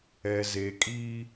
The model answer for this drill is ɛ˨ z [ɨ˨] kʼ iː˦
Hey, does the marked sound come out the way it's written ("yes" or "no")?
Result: no